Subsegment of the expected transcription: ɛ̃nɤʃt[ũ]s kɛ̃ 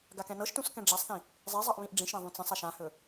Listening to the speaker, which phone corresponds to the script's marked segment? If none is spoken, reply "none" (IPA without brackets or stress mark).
ũ